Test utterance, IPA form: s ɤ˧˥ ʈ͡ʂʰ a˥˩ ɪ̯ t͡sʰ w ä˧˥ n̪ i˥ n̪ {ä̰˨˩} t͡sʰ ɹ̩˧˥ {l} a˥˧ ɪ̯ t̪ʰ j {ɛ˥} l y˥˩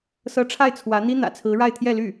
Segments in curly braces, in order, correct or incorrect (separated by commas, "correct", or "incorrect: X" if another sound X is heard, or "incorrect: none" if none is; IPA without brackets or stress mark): correct, incorrect: ɻ, incorrect: ɛ˥˧